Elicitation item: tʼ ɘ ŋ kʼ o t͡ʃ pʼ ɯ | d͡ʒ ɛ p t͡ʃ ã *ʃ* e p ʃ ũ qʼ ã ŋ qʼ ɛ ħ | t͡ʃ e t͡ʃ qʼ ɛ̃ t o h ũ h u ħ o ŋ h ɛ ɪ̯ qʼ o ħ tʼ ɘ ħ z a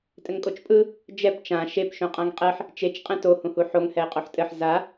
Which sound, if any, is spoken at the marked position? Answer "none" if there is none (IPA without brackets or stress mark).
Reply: ʃ